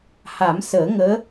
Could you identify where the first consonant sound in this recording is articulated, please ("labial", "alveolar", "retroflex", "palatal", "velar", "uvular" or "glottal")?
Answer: glottal